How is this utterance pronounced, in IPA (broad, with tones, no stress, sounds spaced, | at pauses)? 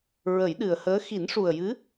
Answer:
ɹ ə˨˩˦ j ɗ ɨ˨˩ ə̯ h əː˧˥ x i˨˩˦ n ʂ u˨˩ ə̯ j ɨ˧˥